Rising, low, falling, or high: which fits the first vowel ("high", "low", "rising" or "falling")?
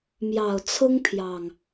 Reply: low